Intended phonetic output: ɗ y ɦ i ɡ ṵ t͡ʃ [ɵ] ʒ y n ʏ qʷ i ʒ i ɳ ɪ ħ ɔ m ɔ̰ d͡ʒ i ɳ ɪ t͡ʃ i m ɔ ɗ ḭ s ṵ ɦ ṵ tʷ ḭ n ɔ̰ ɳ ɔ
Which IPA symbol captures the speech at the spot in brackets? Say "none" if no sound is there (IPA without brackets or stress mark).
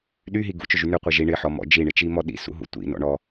ɵ